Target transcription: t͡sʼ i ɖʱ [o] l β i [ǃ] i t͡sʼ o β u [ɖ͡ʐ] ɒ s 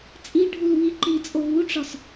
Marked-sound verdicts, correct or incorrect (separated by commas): incorrect, correct, incorrect